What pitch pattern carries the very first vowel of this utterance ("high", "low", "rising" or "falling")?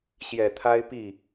low